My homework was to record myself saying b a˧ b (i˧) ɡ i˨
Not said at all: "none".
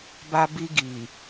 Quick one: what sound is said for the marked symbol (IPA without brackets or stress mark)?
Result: i˧